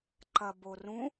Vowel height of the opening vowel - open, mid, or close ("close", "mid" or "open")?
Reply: open